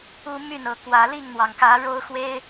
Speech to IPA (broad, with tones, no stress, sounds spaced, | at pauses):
u˦ m y˥˨ n ɤ˨˦ k w ä˨˦ l i˥˨ ŋ n̪ w ɑ˩ ŋ k ä˨˦ ɻ o˦ ʊ̯ x w e˦ ɪ̯